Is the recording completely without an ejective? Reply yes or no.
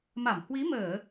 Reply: yes